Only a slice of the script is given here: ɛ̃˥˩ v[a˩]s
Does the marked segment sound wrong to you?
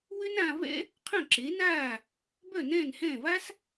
yes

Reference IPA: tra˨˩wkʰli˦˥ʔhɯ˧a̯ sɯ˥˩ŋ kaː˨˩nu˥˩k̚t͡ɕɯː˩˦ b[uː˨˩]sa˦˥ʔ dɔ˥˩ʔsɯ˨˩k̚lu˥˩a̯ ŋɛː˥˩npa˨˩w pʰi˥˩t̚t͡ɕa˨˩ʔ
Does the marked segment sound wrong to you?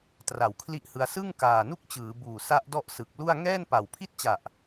no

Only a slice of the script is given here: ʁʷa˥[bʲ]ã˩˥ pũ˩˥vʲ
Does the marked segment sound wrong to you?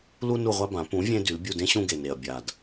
yes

